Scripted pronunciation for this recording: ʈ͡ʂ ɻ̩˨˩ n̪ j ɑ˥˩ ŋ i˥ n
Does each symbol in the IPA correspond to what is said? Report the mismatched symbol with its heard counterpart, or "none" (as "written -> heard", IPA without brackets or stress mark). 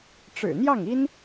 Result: none